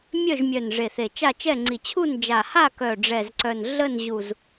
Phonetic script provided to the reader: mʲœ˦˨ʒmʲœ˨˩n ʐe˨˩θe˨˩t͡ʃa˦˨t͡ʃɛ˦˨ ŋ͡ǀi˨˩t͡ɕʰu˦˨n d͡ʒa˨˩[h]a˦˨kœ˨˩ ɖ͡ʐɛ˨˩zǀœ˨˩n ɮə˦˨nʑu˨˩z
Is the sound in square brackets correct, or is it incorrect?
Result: correct